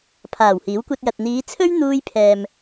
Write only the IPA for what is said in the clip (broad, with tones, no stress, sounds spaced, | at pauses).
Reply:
pʰ aː˨˩ w h iː˨˥ w kʷ ɐ˧ t̚ j ɐ˨ t̚ n̪ iː˨˧ t͡sʰ ɵ˥ ɥ n̪ uː˧ j pʰ ɛː˨ m